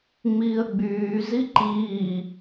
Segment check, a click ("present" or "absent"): present